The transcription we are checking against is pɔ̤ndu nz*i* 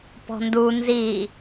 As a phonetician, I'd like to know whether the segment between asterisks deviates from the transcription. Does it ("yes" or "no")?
no